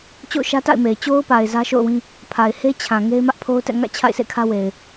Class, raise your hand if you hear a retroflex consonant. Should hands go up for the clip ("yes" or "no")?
no